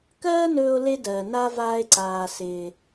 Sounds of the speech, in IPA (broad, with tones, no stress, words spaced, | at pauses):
kɜː˦nɵː˧o̯le˧dɜː˨ na˦ vaː˦e̯ǀaː˧sɪː˧